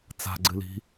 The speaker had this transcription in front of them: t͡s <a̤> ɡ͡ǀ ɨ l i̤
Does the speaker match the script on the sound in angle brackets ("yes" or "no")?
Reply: yes